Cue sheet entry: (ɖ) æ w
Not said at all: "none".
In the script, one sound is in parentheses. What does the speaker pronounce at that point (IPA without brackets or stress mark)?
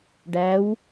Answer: ɖ